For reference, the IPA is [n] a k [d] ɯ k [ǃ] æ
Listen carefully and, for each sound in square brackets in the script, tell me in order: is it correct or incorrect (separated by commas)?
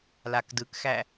incorrect, correct, incorrect